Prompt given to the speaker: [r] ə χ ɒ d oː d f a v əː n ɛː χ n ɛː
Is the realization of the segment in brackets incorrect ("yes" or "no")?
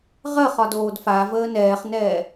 yes